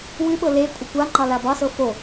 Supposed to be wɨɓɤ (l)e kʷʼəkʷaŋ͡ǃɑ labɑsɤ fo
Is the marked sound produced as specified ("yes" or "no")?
yes